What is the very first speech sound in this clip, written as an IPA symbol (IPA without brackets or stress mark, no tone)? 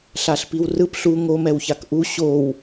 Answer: ɬ